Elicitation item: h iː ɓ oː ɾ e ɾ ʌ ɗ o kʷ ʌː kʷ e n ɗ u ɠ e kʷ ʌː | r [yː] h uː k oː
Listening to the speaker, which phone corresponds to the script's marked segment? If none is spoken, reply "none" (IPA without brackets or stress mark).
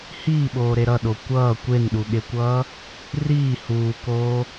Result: iː